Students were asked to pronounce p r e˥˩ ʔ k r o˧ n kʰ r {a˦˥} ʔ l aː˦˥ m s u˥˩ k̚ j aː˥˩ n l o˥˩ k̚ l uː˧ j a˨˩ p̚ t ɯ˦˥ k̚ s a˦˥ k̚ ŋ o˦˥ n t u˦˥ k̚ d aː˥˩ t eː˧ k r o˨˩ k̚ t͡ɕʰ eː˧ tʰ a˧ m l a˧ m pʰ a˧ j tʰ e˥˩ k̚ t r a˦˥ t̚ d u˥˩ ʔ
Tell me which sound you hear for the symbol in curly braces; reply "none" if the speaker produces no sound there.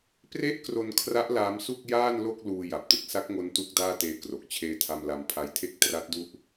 a˦˥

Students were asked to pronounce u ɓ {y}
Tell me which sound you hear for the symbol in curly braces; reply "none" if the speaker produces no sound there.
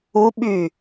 y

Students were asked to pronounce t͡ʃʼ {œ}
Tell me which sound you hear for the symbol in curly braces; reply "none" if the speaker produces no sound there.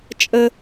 ə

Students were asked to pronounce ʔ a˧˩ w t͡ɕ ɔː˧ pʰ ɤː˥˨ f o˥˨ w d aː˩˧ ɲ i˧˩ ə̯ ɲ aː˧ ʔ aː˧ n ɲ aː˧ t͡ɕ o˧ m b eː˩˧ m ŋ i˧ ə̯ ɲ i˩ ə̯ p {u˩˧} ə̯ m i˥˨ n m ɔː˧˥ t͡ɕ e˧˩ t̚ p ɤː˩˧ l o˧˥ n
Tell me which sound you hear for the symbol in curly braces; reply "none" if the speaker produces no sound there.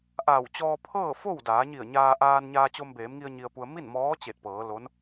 u˩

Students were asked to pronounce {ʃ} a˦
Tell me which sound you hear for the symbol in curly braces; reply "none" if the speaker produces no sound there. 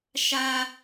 ʃ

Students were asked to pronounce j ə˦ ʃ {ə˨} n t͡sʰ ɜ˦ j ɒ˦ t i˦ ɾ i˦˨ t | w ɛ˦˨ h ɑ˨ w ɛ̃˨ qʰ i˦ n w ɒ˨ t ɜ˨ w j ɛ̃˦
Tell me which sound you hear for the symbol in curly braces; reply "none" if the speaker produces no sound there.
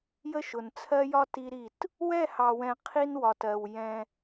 ʊ˨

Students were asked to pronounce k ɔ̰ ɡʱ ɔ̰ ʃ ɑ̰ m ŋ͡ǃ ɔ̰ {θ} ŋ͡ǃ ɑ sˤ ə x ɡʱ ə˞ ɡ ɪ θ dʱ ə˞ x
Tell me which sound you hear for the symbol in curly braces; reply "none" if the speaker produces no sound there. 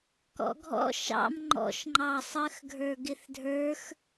ʃ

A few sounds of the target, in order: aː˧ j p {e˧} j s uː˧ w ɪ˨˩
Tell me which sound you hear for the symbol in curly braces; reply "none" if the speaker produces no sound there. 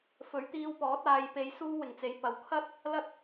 e˧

